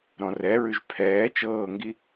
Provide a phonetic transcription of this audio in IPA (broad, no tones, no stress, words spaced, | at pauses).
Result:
ɾɔ̃rɛɹʉʒ pʰɛː t͡ʃɤːŋɡi